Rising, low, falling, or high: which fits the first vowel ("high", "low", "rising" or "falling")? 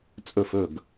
falling